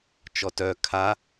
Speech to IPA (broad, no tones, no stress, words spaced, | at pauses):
t͡ʃɔtœ kʰa